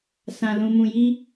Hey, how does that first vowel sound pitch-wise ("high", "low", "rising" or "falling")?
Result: low